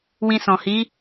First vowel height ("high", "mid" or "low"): high